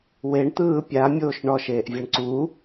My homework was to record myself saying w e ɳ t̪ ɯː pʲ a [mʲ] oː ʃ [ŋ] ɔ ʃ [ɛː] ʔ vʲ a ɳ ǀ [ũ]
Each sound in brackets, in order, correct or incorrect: correct, incorrect: ɳ, incorrect: eː, incorrect: u

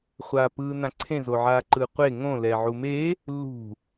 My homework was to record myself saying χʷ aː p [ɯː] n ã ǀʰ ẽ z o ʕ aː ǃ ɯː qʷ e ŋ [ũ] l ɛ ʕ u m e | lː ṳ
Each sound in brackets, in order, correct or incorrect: correct, incorrect: õ

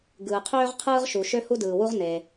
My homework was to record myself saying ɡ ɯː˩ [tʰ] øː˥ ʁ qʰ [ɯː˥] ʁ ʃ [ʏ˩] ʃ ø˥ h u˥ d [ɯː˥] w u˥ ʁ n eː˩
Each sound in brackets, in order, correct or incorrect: incorrect: qʰ, correct, incorrect: u˩, incorrect: ɯː˩

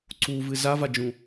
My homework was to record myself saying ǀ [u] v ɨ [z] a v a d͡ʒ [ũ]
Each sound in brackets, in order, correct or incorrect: correct, correct, correct

